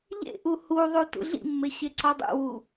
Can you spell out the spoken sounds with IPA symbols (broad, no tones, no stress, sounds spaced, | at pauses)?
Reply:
ʎ ḛ ʔ u h u ðˤ u t ṵ ɮ ḭ mː e ɕ e ǀ ɒ dˤ ṵ w u